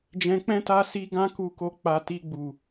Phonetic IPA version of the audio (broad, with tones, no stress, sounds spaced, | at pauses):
d͡ʒ ɛ̃˧ k͡p ɛ̃˦ t a˦ s i˦ ɡ ã˦ k u˧ k o˧ k͡p a˨ t i˧ ɡ͡b u˨